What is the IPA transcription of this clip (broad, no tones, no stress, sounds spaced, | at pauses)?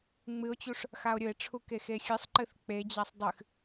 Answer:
ŋ͡m ɨ o̯ t͡ɕ u ʂ | x a o̯ ɾʲ ɵ e̯ ʈ͡ʂʰ u k e x e xʲ ɨ sˤ ǃ ɨ θ k͡p e d͡ʑ a sˤ dˤ ɨ x